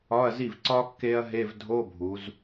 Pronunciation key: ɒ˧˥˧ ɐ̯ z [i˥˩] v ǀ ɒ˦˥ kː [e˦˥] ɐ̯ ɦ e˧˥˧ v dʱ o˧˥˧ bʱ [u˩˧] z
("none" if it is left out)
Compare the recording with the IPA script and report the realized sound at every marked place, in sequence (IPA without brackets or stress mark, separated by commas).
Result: i˥˩, e˦˥, u˩˧